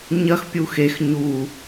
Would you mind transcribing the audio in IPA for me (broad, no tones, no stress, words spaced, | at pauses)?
ɲɐxpʲu xex ɲu